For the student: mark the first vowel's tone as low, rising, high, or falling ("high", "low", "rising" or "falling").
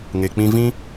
low